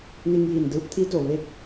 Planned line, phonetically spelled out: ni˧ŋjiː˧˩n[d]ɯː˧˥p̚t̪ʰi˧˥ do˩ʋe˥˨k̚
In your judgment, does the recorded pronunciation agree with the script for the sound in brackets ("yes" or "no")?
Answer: yes